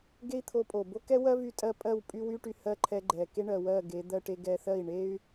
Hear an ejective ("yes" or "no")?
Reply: yes